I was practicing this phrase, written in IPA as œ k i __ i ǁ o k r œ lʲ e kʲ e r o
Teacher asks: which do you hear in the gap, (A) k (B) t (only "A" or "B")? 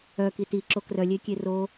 B